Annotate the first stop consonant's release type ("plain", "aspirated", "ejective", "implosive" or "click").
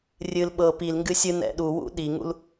implosive